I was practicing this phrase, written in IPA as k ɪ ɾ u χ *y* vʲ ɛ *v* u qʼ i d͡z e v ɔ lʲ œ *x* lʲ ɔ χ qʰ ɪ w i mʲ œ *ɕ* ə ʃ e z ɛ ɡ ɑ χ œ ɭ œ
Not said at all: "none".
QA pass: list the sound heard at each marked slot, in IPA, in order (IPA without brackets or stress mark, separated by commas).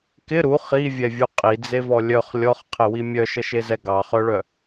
i, vʲ, χ, ʃ